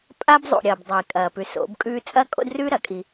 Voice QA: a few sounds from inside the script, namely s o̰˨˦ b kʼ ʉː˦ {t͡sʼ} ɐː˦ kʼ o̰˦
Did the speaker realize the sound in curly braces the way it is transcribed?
yes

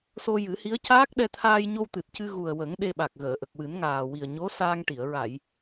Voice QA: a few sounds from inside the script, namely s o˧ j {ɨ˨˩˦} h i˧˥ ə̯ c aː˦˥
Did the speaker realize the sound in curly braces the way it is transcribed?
yes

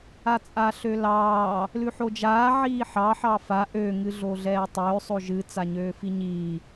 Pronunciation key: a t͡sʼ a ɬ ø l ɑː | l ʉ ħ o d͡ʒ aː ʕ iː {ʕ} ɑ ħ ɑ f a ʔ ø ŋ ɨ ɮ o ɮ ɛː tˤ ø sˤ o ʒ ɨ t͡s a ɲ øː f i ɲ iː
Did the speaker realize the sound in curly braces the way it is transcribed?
no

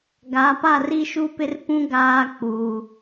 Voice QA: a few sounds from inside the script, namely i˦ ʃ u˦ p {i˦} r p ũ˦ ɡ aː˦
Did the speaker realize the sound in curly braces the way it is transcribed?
no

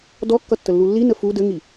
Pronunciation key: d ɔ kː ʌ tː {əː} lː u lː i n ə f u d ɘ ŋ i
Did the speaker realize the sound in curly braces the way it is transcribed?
no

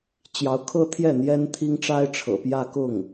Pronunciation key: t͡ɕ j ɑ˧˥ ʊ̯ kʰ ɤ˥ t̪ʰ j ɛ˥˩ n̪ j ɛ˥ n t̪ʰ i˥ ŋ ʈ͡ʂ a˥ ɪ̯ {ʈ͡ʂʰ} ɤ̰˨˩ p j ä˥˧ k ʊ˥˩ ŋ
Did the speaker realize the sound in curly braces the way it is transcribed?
yes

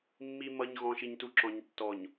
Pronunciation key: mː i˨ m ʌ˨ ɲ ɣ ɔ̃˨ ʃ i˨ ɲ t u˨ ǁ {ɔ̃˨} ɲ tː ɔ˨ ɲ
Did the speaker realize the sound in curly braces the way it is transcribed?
yes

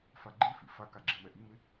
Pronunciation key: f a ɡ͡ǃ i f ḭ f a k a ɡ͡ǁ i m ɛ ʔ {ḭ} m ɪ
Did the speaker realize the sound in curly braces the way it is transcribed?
no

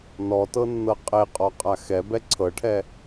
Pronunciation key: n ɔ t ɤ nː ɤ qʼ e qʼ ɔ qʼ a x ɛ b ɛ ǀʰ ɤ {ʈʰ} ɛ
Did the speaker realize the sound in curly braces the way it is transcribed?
yes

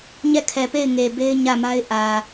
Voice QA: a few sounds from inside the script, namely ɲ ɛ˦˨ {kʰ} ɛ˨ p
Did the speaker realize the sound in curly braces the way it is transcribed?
yes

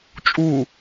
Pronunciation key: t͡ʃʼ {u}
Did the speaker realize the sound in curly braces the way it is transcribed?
yes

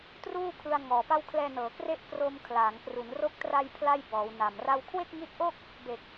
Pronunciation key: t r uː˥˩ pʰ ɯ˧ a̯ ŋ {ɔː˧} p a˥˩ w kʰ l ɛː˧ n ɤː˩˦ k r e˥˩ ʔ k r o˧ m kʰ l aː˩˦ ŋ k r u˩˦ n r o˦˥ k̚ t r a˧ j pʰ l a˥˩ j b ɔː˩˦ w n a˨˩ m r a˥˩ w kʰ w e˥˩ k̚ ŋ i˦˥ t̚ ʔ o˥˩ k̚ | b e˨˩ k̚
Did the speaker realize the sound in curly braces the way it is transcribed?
no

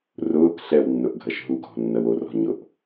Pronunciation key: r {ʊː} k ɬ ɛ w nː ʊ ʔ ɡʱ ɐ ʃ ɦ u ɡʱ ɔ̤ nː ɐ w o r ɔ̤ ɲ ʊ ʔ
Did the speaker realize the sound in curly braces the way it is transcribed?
yes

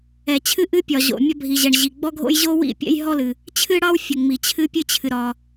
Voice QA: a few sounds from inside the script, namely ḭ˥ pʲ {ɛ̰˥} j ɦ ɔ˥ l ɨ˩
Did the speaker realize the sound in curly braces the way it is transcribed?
yes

